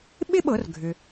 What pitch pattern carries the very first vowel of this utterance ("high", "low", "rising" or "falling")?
high